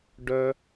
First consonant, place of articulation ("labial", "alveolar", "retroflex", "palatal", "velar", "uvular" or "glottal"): retroflex